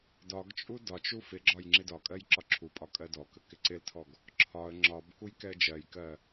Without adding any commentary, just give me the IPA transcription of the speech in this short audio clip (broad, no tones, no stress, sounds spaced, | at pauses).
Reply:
d ɒ ɡ t͡ʃʼ u d ɒ t͡ʃ u f ɪ ɡ͡ǁ ɒ j ŋ͡ǁ ɪ d ɒ kʼ ɜ j ǁ ɒ ǁʰ u pʼ ɒ kʼ ɜ d ɔ k ə k ɪ ǀ ɪ l tʰ ɔ ɡ | ǁʰ ɒ ə̯ ŋ͡ǁ ɒ b k u j k ɛ ə̯ d͡ʒ ɜ j k ɜ